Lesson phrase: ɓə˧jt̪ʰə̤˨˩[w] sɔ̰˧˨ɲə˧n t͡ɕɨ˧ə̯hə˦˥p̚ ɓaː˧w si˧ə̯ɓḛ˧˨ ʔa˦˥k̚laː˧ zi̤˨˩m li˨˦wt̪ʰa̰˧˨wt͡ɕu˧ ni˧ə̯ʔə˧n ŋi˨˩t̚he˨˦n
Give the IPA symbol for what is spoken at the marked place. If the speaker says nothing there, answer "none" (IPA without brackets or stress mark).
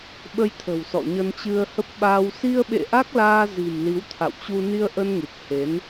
w